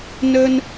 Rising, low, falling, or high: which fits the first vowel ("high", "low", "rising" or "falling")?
high